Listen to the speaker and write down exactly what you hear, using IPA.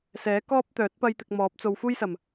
sɛː˨˥ kɔː˥p̚t̪œː˨˥t̚ pɐ˧j t̪ɪ˨k̚ mɔː˨˥p̚t͡so˨w fuː˥jsɐ˨˩m

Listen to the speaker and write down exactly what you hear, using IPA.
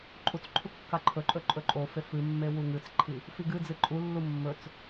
ǃʼut͡sǃʰu kːaǃʰɵǃʼɵ ǃʼɵǃʼofe fɨmːe wuŋɨt͡sǃʰi | fiɡɨd͡zɨ ǃʼulːu mːɵt͡s

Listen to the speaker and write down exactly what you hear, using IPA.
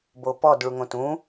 bopɔd ɭuŋõtũ

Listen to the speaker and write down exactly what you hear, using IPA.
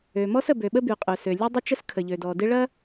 ø˩mɔ˥sə˩bø˩ ɓə˥by˩qʼø˩ sø˩ lʲø˥dˤɪ˥t͡ʃə˥s kʰə˩ʎø˩dɔ˩dɪ˥ ɭɐ˥

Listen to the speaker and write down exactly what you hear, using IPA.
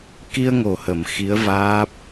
ki˧ə̯ ŋo˨˩ hə˨˩˨m xi˧˥ə̯vaː˦˥p̚

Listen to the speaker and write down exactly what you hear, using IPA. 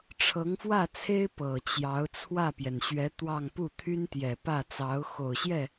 ʈ͡ʂʰɤ˧˥ŋfwä˥˩t͡sʰe˥ɪ̯ pɤ˨˩t͡ɕjɑ˧˥ʊ̯ t͡sʰwä˥˩pjɛ˩nɕɥɛ˧˥t̪wɑ˥˧ŋ pu˥˩t̪ʰy˥nt̪jɛ˨˩ pä˥˩t͡sɑ˧˥ʊ̯ xo˨˩ʊ̯ɕjɛ˥˩

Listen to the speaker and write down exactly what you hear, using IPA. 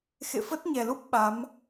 xḛ˧˨fə˦˥t̚ɲɛ˨˩lu˦˥p̚ ɓa˨˦m

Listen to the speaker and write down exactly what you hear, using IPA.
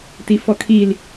tifɔkʰil

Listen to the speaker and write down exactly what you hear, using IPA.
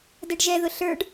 dɛɖʒɛðʊ ɬə˞ɖ

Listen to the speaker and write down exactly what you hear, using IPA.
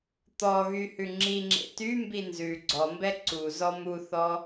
t̪ɔɣy hʉŋ͡ǁiŋ͡ǁḛ tymbi nzʉ ɡ͡ǀɔmbɛ ǀuzɔ muθɔ

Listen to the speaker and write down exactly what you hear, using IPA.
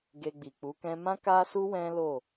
ɡe˧ɡ͡bi˨k͡pu˨˦kɛ̃˦ mã˦ka˦su˦ wɛ̃˦lo˦˨

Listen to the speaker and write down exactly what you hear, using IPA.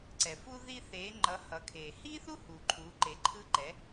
ǀɛ˩ fu˧ ði˧θeː˩˧ ŋ͡ǃʌ˩˧ hʌ˩˧kʰeː˩hi˥θu˥ hu˩ǃʰu˩˧ǃe˩˧ǃʰɯ˧ ǃɛ˩˧

